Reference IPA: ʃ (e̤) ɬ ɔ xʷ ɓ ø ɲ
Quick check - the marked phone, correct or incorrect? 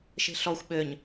correct